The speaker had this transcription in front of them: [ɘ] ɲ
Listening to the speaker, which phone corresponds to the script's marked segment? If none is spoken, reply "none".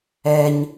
ɛ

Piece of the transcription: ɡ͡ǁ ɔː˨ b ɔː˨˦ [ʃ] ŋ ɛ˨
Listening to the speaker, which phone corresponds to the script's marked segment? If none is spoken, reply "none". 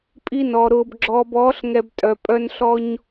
ɬ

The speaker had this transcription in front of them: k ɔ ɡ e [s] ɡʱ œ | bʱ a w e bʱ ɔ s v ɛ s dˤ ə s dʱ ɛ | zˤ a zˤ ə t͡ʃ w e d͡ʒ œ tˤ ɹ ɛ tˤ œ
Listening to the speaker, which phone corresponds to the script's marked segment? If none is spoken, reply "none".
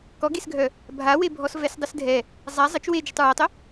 s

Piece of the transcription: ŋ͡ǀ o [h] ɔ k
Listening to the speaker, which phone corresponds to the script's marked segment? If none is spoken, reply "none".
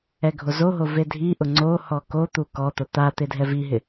h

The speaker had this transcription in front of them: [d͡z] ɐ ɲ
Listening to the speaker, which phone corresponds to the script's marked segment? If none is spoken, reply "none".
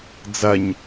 d͡z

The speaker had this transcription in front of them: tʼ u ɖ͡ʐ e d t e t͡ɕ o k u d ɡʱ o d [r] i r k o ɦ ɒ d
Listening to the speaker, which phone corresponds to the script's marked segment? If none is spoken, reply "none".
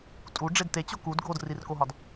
r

